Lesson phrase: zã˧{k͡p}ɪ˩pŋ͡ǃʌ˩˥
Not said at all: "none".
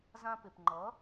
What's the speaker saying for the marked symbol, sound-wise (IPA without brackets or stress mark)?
p